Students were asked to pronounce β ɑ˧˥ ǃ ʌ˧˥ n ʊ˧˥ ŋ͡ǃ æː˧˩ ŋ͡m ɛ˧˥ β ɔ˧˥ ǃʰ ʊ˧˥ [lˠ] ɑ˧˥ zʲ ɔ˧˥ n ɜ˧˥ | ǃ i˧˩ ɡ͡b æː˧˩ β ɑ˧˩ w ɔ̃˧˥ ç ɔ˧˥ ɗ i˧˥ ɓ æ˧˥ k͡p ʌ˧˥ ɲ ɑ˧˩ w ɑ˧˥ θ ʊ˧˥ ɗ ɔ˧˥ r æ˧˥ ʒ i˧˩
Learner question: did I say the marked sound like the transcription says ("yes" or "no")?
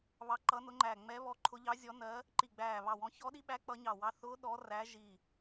no